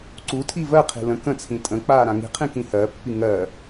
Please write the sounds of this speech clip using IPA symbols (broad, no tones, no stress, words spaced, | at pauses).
ǀutʰi vɜqʰi̤ lə̃ kə̃t͡sʰĩ tʼə̃ k͡paːɾãŋi̤qʰĩ kĩhɜpːi ŋɜ